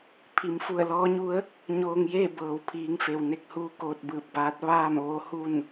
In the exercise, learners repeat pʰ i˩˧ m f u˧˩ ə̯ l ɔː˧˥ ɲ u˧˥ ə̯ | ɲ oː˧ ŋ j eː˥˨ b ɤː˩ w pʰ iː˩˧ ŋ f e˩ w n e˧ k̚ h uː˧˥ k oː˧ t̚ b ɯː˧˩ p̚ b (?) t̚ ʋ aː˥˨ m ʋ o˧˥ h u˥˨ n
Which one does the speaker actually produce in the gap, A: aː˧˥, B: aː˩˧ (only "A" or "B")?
A